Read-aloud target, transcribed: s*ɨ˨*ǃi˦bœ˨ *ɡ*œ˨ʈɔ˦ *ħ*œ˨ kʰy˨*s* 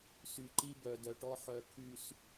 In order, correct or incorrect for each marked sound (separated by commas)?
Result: incorrect, incorrect, correct, correct